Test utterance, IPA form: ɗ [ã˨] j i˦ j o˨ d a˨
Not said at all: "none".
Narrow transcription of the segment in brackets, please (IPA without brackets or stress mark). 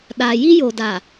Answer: a˨